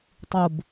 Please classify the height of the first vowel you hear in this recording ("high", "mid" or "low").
high